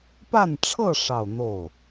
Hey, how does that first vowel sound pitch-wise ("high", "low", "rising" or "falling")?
falling